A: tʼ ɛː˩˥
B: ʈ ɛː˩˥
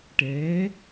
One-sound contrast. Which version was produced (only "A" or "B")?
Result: B